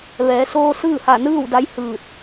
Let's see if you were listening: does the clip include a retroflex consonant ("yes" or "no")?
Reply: no